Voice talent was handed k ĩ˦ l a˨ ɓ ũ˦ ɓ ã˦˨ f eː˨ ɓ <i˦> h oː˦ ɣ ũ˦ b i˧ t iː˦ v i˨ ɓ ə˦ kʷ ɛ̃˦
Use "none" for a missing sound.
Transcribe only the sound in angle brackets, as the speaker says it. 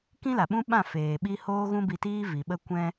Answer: i˦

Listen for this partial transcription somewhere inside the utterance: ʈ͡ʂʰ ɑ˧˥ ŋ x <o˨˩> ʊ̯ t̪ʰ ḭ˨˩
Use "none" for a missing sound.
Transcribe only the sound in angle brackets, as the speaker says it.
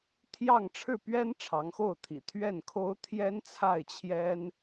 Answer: o˥˩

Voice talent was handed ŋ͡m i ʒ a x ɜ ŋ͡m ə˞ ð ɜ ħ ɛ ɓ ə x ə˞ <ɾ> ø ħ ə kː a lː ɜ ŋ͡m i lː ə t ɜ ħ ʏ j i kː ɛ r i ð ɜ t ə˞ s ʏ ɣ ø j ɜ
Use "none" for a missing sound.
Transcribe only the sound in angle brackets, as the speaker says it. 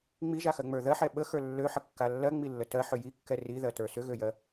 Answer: lː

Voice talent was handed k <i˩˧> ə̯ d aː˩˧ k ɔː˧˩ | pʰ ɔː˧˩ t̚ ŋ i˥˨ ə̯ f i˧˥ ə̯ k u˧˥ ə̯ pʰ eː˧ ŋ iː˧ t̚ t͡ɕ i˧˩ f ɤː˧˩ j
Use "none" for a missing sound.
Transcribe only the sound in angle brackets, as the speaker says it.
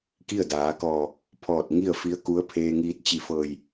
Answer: i˥˨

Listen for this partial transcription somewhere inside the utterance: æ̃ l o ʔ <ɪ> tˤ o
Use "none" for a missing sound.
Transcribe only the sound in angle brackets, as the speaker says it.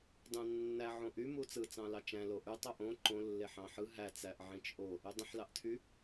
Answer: y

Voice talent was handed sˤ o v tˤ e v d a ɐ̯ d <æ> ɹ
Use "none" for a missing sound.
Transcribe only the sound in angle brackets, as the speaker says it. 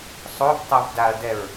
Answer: ɛ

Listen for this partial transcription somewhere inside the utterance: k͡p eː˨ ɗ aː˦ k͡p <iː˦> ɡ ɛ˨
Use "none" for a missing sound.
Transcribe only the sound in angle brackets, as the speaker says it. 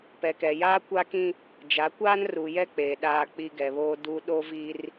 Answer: i˦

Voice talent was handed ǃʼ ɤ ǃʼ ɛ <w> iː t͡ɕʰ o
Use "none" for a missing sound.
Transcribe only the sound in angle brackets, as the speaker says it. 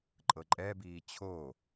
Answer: b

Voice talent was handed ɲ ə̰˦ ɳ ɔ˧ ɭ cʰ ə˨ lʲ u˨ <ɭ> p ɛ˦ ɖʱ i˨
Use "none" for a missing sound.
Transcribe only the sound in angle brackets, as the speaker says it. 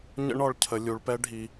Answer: ɭ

